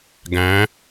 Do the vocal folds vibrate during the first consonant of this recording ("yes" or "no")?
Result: yes